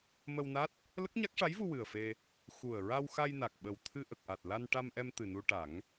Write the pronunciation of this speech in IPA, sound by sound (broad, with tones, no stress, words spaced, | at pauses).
mə˧wna˦˥t̚ | lə˦˥k̚ɲa˦˥k̚ʂa˧˥jvu˧ wɨ˨˩ə̯fe˧ | xu˨˩ə̯ɹa˧w xa˧jna˨˩k̚ɓə˨˩w t̪ʰɨ˧ʔə˨˩k̚ʔa˨˩t̚ la˧nʈa˧mʔɛ˧m t̪ɨ˨˩nu˧ʈa˨˩˦ŋ